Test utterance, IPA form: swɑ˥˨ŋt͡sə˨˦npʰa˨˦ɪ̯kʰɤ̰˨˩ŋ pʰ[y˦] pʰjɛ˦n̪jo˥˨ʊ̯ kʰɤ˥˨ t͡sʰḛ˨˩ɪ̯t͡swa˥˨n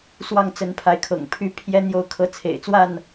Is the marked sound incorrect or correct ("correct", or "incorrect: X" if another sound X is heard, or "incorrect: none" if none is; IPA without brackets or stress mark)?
correct